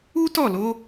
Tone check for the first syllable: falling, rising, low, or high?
high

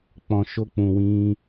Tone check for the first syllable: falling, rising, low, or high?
low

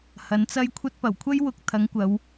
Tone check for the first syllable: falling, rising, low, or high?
rising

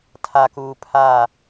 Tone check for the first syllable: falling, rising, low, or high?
low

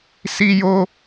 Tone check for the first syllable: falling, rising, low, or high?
high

